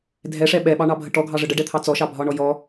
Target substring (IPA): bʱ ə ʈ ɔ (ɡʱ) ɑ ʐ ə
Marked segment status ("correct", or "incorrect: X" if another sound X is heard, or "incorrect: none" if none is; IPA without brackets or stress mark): correct